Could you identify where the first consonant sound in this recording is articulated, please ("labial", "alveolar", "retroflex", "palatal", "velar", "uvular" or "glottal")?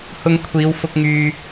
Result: glottal